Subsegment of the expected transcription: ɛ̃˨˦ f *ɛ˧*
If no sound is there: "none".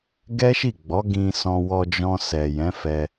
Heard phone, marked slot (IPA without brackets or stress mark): ɛ˧